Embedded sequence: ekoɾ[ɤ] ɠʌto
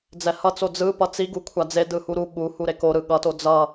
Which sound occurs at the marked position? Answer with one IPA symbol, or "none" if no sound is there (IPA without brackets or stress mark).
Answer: ɯ